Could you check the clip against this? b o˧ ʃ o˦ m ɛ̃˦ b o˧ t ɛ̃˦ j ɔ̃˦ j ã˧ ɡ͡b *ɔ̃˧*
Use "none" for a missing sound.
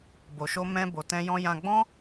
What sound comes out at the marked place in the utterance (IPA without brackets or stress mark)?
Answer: ɔ̃˦